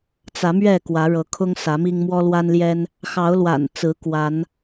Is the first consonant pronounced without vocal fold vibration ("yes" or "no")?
yes